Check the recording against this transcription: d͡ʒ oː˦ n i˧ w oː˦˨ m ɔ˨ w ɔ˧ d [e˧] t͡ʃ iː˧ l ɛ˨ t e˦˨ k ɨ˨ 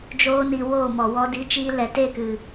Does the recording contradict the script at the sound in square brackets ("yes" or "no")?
yes